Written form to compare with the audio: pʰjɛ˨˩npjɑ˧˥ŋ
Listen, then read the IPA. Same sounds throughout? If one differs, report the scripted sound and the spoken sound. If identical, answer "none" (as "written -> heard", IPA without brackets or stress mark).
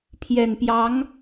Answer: none